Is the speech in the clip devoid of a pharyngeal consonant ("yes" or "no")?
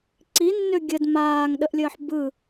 no